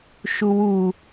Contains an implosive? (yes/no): no